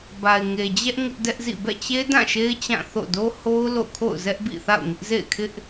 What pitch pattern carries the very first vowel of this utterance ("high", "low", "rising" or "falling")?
low